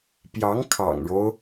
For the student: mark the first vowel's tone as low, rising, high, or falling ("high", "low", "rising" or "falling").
rising